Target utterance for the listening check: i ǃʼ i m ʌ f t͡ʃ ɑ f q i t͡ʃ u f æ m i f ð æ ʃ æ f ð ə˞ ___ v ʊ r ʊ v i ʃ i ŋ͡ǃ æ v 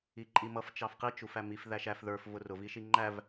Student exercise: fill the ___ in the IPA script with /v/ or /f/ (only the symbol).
f